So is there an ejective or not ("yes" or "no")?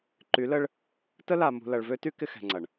no